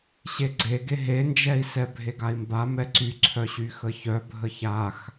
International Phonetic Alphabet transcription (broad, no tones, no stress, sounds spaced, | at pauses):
ɕ e ɡ͡ǀ e ɡ e ɦ e n d͡ʒ ɛ i̯ s ɛ bʱ e ɡ a i̯ m b a m ɛ ǀ y ǀʰ œ ɕ y x ə ç œ bʱ ə ç a x